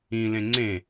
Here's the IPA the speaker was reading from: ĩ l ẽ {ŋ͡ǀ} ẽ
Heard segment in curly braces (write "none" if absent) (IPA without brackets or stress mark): ŋ͡ǀ